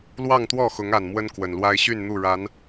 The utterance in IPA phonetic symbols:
lwɑ˥˨ŋt̪wɔ˥˨xʊ˨˦ŋa˨˩n mwə˦nkwə˨˩nlwa˦ɪ̯ ɕy˥˨nn̪u˥˨ɻa˨˦n

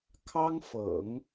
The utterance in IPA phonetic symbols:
kʰɑ˥ŋfɤ̰˨˩˦ŋ

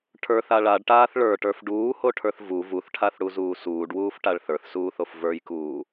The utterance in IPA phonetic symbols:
ʈʰə˞θa ɭaɖʈaːθ ɭə˞ʈə˞f ɖuːhoʈʰə˞θ vu vuθʈʰaθɽuzuː suːɖwuːfʈaɭ θə˞θsuːθof və˞jkuː

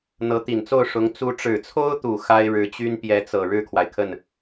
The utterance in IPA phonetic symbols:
n̪ɤ˧˥t̪i˨˩nt͡so˥˩ʊ̯ ʂʊ˧˥ŋ t͡su˧˥ʈ͡ʂɻ̩˨˩t͡sʰo˥ʊ̯t̪u˨˩ xa˥ɪ̯ɻɻ̩˧˥t͡ɕy˥n pjɛ˧˥t͡sɤ˨˩ ɻɻ̩˥˩kʰwa˩ɪ̯kʰə˥˩n

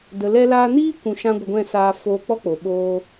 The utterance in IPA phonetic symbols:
də˨lɛ˧laː˧niː˦ kʷũ˧ʃã˦ ɡʷə˧ɡʷɛ̃˦˨saː˧foː˧ k͡pɔ˦k͡po˨ ɓoː˧

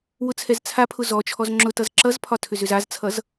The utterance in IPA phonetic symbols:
wʊt͡sʰɛzt͡sʰapʰʊ zɔt͡ʃʰɔz ŋ͡ǁʊtʌz ǁʌzpʰɒ tʰʏzʏzazt͡sʰʌz

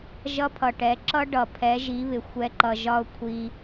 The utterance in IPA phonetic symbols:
ʒʌ˦pʰʌ˨ʈɛ˨˦ ǁʌ˦ ɖʌ˨ pʰɛ˨˦ʒi˨˦βɪ˨ xʷɛ˦ǃʌ˧ ʒɒ˦ʊ̯kʷʰi˧

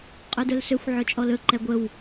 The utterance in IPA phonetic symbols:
qʼødɵlsʏxʷ ʕɵt͡ʃʼɔlɵ ǃɛɡʷəw

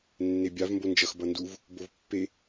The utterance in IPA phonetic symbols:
nːebʲav mbond͡ʒʌx bʌnduv | bovpːe

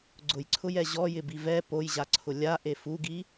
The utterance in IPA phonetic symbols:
ɡ͡ǀʊjǀʰʊjɛ ʑɔjɪbi vɛ pojʑaǀʰʊ lʲaʔe fuɡi

